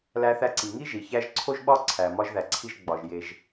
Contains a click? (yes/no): yes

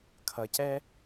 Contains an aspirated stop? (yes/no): yes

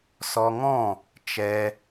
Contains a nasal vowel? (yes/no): yes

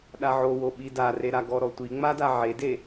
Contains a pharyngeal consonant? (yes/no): yes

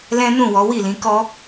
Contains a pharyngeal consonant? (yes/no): no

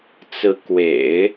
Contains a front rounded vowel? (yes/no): no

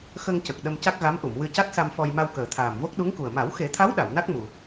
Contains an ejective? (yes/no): no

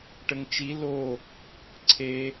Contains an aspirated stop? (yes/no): yes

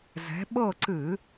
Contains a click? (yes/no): yes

